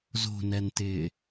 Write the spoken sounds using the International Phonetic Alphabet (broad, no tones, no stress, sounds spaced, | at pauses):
z o̤ n ɛ n t ɪː